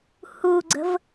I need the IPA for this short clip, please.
h u ɡ͡ǀ ə̤ v

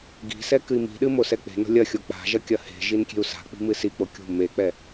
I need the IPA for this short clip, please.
ɡ i̤ s ɛ k ɨ i̯ m i̤ ɗ ɨ m o s ɛ k͡p e̤ n o̤ lʲ ɐ xʲ o k͡p a̤ ʒ ɐ kʲ ɐ h e̤ ʒ i n kʲ e̤ u̯ s a̤ k͡p i̤ m ɨ s i k͡p o kʲ ṳ m e k͡p ɛ

